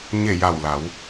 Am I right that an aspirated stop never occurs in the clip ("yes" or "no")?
yes